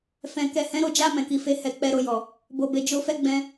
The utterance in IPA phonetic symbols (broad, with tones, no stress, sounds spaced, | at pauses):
f ɛ̃˨ k ɛ˨ h ɛ̃˨˦ ɾ o˧ d͡ʒ a˧ m ɛ̃˨ k i˨ f e˨˦ h ɛ˦ k͡p ɛ˦ ɾ o˦˨ j ɔ˨ | b o˨ b e˨ d͡ʒ o˧ f ɛ˦ ɡ͡b ɛ̃˧